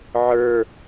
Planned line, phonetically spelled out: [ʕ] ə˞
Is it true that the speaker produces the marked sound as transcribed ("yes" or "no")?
yes